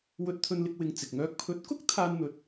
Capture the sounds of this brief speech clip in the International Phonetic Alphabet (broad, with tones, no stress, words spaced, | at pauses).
wɵ˧t̚t̪ʰɵ˧nlɪ˧k̚ wɪ˨˧ŋ t͡sɪ˨k̚ŋœː˥k̚ pʰɵ˨˥t̚kʊ˥k̚ t̪ʰaː˥nn̪ɵ˧t̚